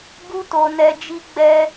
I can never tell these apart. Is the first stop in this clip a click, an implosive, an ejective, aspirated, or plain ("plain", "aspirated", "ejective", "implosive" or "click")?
plain